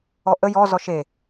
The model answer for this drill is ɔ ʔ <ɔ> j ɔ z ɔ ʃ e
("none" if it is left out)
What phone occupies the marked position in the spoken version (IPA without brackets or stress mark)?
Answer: ə